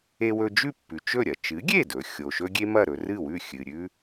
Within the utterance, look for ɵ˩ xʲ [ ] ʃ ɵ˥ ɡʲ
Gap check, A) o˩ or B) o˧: A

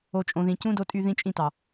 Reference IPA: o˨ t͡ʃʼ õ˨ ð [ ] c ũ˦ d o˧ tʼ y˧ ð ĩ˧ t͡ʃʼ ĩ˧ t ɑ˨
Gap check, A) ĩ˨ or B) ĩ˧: A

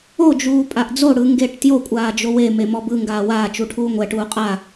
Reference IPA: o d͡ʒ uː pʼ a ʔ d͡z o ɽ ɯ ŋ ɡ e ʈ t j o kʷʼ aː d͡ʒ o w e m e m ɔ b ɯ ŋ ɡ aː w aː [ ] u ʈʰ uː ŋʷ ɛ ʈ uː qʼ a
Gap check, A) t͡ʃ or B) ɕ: A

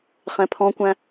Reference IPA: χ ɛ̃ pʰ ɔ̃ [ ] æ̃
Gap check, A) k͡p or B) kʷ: B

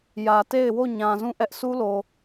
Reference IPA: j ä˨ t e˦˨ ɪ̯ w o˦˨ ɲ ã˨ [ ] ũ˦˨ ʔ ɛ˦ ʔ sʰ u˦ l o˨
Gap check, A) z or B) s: A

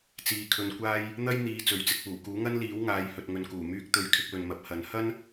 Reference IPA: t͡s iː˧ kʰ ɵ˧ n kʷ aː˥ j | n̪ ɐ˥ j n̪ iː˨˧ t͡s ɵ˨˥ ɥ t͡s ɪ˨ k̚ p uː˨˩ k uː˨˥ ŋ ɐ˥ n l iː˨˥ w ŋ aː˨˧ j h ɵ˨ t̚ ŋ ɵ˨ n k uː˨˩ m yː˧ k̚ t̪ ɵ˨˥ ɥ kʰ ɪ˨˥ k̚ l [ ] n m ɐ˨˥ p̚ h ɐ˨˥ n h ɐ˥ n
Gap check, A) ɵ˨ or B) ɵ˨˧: A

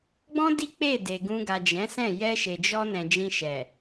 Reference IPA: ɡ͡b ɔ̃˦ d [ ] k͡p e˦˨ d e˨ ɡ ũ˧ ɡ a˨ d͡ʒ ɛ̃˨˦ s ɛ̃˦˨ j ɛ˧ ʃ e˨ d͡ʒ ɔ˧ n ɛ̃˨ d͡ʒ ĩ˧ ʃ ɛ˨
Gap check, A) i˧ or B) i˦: B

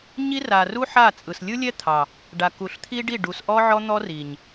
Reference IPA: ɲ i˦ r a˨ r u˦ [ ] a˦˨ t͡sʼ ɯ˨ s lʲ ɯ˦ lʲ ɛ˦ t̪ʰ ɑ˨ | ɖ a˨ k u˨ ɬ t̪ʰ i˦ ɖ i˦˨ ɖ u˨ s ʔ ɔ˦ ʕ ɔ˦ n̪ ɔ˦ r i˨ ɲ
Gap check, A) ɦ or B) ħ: B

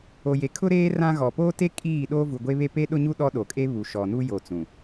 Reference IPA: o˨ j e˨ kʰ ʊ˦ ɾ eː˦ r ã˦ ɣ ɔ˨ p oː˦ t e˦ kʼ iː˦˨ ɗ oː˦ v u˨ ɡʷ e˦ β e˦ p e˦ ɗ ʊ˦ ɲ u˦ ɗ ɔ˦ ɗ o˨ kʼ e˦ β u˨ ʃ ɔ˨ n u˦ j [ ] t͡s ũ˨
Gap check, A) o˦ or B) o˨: B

